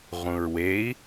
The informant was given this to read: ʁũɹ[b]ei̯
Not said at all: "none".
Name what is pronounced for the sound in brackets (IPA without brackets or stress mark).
w